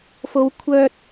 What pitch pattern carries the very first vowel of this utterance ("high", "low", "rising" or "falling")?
low